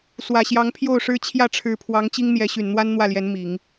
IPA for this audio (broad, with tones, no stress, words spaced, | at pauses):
swä˨˩ɕjɑ˧˥ŋpʰjo˥˩ʊ̯ʂɻ̩˥ t͡ɕʰjä˥˩ʈ͡ʂʰɻ̩˧˥pʰwɑ˧˥ŋ t͡ɕi˥ŋ n̪jɛ˧˥ ɕy˨˩nn̪wa˥n n̪wä˥˩ljɛ˧˥n mi˨˩˦ŋ